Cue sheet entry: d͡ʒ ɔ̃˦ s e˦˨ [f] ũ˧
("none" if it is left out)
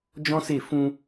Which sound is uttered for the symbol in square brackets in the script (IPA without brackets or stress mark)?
f